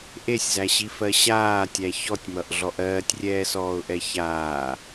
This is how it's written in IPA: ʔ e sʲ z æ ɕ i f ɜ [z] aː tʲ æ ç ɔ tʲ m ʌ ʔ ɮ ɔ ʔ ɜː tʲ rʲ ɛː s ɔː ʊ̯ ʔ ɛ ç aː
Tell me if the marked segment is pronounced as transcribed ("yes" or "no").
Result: no